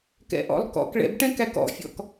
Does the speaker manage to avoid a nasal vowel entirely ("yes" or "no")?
no